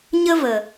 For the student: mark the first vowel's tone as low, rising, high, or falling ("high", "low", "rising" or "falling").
high